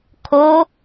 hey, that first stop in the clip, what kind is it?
aspirated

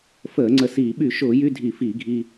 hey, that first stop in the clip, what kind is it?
click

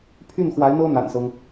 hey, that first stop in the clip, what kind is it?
aspirated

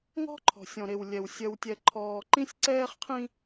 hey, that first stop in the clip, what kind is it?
click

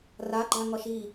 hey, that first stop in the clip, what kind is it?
click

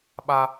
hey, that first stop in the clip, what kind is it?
implosive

